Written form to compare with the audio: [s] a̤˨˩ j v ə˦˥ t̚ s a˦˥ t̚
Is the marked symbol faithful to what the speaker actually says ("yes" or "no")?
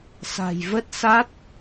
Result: yes